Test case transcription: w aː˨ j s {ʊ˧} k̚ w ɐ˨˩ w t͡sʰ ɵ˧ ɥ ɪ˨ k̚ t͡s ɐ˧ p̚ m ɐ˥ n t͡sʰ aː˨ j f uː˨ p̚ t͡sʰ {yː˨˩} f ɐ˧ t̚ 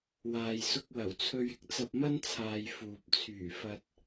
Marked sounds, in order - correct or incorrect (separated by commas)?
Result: correct, correct